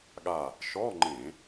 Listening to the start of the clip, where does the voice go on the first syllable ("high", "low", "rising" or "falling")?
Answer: falling